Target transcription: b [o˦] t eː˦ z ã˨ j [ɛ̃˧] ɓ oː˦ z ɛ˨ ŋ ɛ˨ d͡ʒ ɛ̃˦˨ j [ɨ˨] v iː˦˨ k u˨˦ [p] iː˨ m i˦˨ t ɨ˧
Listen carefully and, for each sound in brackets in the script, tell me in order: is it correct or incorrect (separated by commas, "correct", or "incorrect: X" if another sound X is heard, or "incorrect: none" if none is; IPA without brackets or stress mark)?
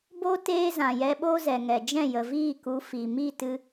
correct, incorrect: ɛ˧, incorrect: ə˨, incorrect: f